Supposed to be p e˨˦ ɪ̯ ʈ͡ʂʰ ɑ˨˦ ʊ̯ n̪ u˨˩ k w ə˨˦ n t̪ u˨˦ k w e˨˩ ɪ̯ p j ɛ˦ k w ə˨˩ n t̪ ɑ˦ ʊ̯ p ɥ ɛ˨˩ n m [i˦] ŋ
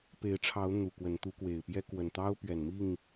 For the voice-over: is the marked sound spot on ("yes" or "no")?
no